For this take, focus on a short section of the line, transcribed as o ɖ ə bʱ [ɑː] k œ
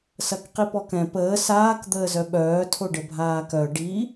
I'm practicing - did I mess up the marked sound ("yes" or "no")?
yes